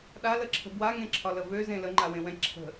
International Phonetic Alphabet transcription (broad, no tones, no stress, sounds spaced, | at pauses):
ɗ a l ə ǁʰ ə̤ b w a ŋ ẽ ǁʰ ɒ l ə v ø z ẽ l ə ŋ͡ǃ a w ẽ w ɛ̃ ǁʰ ə̤